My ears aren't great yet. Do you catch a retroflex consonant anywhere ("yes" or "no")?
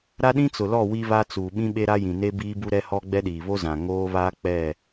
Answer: no